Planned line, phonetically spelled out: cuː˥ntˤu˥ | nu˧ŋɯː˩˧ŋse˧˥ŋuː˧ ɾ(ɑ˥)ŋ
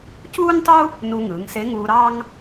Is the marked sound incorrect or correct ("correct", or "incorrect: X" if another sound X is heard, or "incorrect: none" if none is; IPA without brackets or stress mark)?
correct